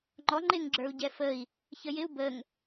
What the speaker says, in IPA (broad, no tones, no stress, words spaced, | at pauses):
ŋ͡ǃɔ ŋ͡ǃɪŋ ɡ͡ǁə˞u̯ɟɛfəi̯ | çəjɪu̯ bəŋ